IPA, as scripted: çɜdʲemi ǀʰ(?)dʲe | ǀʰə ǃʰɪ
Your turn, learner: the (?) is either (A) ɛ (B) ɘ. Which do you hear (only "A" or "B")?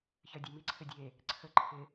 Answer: B